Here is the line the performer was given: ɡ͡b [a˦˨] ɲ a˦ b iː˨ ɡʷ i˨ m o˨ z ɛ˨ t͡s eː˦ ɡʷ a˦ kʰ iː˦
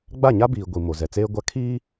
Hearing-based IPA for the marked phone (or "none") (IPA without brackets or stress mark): a˦˨